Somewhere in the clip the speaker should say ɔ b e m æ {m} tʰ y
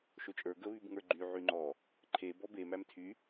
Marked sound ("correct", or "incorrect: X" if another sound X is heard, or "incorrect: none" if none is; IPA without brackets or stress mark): correct